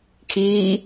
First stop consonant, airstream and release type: aspirated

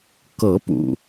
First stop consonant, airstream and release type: plain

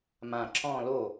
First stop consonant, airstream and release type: click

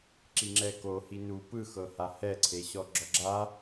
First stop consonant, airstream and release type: click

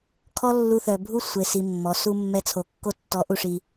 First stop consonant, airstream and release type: aspirated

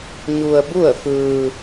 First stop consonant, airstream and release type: plain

